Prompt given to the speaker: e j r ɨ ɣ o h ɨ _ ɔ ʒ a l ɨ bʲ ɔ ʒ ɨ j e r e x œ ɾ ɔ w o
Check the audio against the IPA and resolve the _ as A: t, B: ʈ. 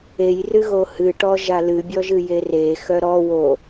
B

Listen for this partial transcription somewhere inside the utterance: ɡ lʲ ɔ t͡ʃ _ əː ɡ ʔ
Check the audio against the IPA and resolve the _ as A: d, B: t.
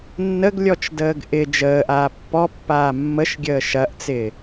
A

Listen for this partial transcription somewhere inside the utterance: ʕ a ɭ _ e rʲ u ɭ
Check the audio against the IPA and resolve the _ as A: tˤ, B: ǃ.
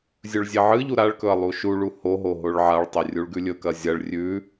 A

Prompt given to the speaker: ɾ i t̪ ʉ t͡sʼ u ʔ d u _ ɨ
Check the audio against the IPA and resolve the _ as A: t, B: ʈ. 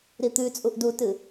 A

